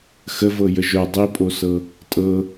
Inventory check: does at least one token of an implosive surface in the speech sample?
no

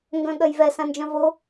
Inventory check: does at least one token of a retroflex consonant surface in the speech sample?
no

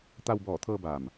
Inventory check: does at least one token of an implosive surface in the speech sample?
no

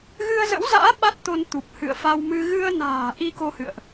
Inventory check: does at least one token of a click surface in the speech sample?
no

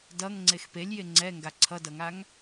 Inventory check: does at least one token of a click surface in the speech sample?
yes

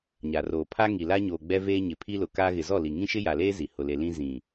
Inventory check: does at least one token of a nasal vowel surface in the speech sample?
yes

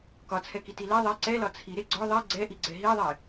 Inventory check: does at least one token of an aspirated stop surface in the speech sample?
yes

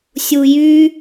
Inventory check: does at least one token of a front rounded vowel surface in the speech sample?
yes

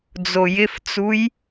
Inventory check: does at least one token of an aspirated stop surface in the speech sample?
no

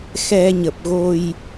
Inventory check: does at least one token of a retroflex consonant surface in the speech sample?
no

